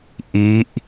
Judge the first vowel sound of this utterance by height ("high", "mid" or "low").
high